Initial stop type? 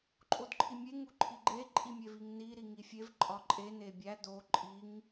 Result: click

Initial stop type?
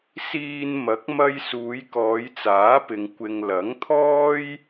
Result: plain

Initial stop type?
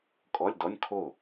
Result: ejective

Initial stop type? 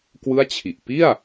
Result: plain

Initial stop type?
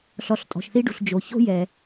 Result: ejective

